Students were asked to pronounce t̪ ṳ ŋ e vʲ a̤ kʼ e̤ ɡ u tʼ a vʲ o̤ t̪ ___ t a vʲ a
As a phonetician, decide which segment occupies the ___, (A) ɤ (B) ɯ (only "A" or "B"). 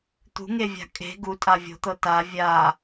A